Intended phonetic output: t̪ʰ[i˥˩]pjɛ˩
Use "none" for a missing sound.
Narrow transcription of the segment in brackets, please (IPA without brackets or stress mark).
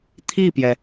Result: i˥˩